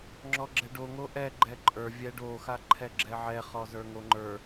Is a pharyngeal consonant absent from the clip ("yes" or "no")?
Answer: no